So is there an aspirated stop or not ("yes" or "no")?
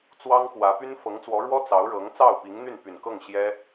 no